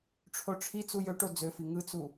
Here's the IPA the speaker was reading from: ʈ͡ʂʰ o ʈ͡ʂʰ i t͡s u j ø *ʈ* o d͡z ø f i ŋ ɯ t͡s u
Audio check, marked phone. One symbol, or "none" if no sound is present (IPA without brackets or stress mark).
ʈ